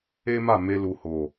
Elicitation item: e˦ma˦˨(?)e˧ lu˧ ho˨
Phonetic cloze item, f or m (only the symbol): m